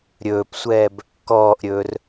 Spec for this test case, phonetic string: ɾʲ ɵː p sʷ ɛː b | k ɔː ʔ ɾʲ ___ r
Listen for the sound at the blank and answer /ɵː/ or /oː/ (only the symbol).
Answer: ɵː